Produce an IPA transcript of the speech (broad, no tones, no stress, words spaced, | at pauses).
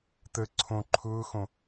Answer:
t̪ə ǀʰõ ǃʰʊːxõ